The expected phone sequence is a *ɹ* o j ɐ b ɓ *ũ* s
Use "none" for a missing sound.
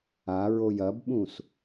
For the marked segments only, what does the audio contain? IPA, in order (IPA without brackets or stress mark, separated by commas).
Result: ɹ, ũ